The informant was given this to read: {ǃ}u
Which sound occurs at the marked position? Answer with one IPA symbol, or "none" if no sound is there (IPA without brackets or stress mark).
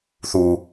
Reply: θ